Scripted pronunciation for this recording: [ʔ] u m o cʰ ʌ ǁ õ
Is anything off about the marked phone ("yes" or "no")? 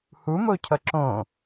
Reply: yes